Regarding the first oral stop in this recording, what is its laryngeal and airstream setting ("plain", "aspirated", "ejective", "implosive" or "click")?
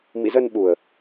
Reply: implosive